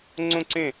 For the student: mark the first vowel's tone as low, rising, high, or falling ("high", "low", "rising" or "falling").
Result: falling